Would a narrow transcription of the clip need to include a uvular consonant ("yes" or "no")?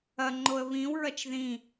no